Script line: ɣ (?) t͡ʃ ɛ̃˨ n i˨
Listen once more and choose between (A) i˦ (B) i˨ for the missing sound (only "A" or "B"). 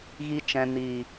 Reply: B